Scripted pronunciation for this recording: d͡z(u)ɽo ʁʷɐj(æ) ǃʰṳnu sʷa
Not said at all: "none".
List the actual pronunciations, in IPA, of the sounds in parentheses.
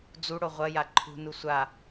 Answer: u, a

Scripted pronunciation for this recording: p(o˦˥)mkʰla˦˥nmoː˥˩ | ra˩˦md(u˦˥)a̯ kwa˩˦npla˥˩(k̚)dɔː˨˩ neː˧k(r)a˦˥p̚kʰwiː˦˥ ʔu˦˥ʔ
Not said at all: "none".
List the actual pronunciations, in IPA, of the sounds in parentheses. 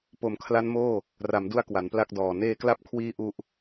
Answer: o˨˩, u˧, k̚, l

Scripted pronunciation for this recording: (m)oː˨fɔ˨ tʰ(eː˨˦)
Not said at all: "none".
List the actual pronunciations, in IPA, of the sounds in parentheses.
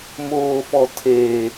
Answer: m, eː˨

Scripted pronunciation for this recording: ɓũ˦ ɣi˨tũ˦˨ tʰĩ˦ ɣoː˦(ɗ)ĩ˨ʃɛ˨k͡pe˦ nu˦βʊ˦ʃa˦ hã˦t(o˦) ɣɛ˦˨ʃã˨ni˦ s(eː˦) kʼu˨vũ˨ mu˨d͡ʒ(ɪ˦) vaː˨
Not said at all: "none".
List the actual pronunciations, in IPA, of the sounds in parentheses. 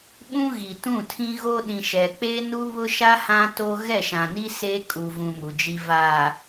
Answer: ɗ, o˦, eː˦, i˦

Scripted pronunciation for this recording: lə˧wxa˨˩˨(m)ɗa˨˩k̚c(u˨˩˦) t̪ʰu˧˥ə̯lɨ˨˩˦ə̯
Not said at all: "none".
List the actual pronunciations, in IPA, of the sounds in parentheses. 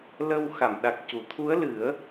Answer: m, u˨˩˦

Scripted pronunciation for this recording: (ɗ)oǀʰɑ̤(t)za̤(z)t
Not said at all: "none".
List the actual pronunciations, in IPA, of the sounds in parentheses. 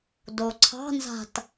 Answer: d, n, none

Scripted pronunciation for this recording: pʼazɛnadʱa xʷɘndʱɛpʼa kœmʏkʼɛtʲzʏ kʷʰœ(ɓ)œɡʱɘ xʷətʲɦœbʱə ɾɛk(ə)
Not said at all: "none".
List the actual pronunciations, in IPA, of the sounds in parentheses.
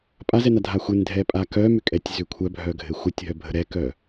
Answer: bʱ, œ

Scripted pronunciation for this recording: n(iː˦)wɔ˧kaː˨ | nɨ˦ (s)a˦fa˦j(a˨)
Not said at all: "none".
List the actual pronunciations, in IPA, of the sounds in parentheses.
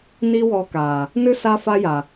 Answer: i˦, s, a˨

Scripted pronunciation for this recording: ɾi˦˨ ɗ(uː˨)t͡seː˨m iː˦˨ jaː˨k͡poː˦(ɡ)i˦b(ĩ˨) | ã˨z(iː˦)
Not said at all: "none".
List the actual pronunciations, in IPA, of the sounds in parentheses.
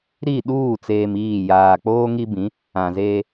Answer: uː˦˨, ŋ, ĩ˨˦, eː˦

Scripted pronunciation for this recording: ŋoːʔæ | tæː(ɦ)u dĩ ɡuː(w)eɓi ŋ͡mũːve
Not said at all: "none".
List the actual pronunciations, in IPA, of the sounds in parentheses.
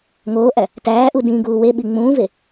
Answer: ʔ, w

